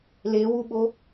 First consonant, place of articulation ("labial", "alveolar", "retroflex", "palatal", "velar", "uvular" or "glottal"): alveolar